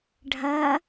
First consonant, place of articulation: retroflex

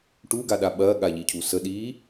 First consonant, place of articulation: retroflex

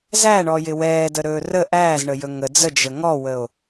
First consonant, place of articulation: alveolar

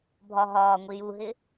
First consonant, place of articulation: labial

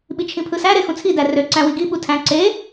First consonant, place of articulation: labial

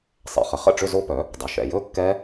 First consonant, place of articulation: alveolar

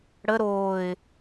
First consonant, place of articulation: retroflex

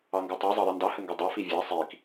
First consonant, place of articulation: velar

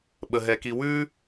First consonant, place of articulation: labial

